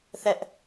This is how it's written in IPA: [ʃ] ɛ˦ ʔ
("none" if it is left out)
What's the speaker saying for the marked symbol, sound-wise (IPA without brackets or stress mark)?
θ